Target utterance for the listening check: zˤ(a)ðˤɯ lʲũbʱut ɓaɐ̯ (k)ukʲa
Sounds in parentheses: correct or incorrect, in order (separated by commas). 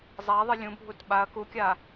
correct, correct